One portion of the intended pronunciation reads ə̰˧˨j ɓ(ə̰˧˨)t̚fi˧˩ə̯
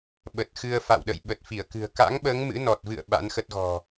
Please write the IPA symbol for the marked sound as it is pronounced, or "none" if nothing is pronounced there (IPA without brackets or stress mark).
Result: ə˨˩